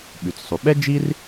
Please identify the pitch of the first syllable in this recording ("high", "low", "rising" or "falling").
low